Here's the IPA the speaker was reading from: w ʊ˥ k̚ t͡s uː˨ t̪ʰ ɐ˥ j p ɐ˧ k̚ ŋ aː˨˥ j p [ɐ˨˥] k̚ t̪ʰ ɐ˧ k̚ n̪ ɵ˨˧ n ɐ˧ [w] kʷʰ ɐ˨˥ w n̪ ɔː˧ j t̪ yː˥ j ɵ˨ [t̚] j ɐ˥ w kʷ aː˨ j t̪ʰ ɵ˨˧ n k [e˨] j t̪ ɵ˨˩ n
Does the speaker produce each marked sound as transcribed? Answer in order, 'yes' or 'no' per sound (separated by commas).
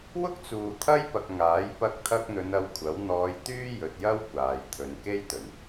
no, yes, yes, no